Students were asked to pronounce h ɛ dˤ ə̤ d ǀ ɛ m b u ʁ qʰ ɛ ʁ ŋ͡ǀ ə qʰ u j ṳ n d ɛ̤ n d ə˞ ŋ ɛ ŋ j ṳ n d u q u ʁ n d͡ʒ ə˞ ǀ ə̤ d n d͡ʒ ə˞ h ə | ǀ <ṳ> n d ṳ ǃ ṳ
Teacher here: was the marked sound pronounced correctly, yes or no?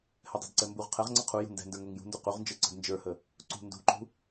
yes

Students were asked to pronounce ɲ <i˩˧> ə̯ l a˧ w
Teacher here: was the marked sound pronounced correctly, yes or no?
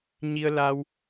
no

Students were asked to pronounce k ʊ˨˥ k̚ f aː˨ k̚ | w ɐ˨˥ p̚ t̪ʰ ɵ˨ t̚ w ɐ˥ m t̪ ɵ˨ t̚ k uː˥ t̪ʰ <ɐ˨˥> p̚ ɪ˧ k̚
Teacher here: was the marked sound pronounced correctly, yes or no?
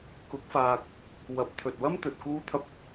no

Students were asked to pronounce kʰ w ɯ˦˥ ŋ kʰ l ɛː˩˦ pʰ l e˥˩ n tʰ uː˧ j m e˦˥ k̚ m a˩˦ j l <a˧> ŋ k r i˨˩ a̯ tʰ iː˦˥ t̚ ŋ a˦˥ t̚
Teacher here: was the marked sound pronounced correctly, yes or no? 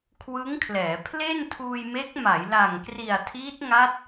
no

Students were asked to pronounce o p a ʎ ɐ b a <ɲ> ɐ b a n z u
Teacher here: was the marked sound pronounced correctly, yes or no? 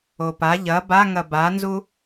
no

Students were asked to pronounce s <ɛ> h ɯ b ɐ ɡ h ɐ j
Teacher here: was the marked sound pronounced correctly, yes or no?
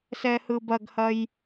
yes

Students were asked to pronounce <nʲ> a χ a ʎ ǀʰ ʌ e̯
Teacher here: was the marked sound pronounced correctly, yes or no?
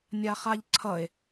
yes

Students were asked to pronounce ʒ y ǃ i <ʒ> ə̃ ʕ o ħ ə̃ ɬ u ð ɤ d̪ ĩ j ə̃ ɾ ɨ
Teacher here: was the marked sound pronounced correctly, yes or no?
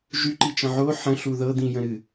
no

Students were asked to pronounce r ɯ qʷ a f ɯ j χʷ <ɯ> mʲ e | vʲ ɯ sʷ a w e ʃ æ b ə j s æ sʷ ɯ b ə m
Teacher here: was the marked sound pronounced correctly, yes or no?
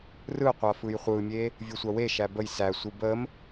yes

